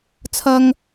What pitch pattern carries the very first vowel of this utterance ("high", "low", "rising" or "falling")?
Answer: low